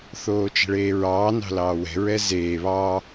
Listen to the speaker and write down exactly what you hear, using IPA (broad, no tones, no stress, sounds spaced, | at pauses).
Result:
θ oː t͡ʃ ɛ̤ ɭ eː ɹ ɑː n ɑ̤ l ɑː w ɛ̤ ɹ ɛ z eː β ɑː